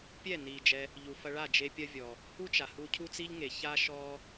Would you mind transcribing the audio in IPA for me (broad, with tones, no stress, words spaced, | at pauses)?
pʲɛ˦˨ni˨ d͡ʒɛ˧ | ʎu˨fɐ˧ɭa˦˨ d͡ʒe˧pʲɐ˦vʲɔ˨ | hu˦t͡ʃa˨ hu˧cʰu˦t͡si˦ʎŋe˨ ça˦ʃɔ˦